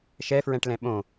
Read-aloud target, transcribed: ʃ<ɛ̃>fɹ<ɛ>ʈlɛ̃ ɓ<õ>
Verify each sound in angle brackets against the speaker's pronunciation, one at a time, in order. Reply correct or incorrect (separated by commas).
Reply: incorrect, incorrect, correct